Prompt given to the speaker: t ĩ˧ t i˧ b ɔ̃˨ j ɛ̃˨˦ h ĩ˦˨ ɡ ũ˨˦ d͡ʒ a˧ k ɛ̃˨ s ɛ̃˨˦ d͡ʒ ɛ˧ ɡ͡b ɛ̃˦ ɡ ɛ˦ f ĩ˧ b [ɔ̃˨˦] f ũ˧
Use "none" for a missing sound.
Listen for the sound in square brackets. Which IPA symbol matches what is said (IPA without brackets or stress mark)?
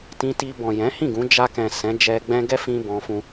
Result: ɔ̃˧